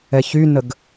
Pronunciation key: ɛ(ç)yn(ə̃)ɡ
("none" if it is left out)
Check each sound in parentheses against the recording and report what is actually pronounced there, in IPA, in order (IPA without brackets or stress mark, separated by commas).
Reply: ç, ə